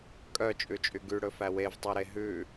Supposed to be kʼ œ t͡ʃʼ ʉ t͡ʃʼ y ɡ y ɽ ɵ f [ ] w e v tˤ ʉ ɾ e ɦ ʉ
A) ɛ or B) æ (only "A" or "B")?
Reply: B